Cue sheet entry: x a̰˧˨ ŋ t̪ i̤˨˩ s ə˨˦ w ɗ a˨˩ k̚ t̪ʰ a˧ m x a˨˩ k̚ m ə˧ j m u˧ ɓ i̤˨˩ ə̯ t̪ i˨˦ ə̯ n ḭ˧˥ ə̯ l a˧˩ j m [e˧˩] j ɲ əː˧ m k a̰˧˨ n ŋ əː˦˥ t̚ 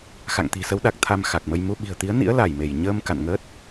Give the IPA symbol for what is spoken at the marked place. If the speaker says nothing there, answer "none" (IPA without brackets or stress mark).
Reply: e˧˩